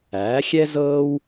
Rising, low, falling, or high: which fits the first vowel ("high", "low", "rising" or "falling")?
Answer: rising